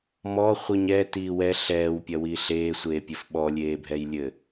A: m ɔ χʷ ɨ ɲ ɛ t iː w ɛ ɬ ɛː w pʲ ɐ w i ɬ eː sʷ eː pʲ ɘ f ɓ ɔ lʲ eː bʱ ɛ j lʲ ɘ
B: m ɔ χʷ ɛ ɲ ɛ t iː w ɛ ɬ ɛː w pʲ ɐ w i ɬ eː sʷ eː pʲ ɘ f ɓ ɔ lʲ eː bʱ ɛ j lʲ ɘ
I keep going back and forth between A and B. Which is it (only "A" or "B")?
A